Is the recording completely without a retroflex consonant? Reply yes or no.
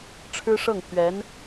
no